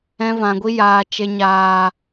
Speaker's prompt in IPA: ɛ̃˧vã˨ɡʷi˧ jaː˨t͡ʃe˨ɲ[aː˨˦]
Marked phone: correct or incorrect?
incorrect